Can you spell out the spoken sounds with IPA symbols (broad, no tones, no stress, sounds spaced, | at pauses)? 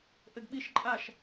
ʔ ɘ ɡ ɓ i ʃ ǃʼ a ʃ